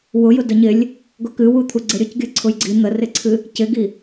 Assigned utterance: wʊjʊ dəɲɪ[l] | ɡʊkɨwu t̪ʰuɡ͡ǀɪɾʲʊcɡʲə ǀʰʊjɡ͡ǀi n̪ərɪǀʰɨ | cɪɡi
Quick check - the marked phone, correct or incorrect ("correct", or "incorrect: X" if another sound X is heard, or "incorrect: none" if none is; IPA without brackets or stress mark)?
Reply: incorrect: lʲ